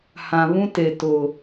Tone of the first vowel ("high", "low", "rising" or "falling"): low